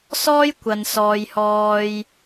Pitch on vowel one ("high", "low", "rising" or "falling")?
high